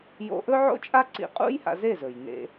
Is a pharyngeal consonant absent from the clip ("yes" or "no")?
no